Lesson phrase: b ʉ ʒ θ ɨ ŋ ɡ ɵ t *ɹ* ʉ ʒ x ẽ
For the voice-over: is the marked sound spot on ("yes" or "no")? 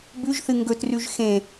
no